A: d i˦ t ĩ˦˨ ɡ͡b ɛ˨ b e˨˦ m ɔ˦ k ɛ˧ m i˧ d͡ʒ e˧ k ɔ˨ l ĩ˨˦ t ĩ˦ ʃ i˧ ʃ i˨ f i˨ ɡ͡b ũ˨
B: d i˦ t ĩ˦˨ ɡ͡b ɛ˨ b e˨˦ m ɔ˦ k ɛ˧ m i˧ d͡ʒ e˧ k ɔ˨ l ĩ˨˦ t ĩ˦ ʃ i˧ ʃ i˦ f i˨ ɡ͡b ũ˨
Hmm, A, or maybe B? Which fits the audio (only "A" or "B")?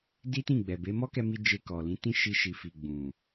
A